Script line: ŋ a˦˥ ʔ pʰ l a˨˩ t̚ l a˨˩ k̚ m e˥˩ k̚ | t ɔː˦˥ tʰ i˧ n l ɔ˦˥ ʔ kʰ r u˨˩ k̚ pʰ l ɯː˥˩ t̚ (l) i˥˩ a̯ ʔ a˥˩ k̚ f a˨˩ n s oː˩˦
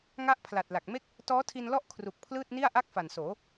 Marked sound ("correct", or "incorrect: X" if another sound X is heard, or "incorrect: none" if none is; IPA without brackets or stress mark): incorrect: n